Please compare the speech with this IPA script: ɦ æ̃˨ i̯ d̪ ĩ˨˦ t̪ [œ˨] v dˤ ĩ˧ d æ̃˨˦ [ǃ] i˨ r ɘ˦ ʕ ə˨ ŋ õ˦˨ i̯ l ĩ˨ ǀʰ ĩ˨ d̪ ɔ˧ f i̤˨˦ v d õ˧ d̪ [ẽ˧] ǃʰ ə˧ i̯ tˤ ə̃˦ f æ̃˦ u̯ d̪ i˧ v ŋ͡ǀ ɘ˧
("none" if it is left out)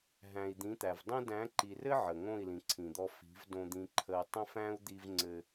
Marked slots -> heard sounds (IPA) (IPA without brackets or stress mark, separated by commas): æ˨, ǃ, ĩ˧